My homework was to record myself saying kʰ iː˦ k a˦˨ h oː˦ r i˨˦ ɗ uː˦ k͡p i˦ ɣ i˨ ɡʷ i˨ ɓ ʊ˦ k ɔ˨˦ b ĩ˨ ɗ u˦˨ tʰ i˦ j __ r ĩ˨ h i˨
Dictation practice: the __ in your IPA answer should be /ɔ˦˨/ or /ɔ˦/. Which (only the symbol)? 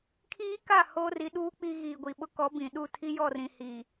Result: ɔ˦˨